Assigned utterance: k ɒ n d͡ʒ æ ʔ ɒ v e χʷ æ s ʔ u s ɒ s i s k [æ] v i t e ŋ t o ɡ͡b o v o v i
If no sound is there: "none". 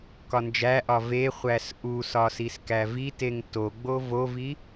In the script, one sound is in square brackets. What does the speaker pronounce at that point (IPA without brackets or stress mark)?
æ